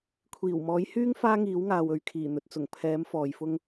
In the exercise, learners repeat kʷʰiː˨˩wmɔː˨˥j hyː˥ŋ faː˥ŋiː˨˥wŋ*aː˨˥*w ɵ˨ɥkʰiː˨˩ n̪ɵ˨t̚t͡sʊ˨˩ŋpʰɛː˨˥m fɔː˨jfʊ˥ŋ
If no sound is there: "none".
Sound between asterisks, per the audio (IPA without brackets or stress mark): aː˨